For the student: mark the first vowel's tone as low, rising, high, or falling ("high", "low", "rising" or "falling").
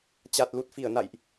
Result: low